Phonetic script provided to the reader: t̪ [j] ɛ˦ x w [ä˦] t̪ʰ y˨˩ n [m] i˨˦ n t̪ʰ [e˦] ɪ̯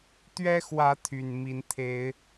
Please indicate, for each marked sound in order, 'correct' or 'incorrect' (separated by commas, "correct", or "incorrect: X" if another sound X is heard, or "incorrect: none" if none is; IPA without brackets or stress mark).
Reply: incorrect: ɥ, incorrect: ä˨˦, correct, incorrect: e˨˦